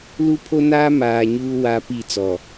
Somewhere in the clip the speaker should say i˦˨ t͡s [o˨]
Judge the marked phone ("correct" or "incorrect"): incorrect